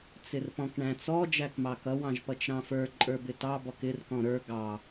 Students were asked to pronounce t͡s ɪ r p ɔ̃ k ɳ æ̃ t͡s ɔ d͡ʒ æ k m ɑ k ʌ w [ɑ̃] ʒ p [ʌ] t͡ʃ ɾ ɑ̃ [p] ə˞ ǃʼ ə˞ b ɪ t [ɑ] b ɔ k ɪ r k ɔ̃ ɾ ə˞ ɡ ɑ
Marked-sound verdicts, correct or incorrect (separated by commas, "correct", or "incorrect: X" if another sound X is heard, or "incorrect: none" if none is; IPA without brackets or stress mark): correct, correct, incorrect: f, correct